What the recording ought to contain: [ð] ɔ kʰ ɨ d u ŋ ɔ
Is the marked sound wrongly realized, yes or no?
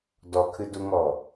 yes